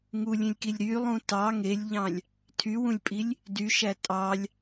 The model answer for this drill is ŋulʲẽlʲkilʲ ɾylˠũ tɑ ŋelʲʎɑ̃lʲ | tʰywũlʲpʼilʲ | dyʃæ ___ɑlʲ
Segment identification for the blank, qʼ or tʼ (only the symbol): tʼ